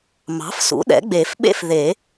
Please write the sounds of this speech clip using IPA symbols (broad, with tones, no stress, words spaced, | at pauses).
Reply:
mɑ̤˩˥fsṵ˩˥ ɗɛ̰˩˥ɡ͡be˨˩˦fɓḛ˥˧f ðe˨˩˦